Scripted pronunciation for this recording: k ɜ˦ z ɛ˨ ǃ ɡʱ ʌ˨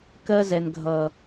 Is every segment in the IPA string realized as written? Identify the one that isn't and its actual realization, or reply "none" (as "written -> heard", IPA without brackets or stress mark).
ǃ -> n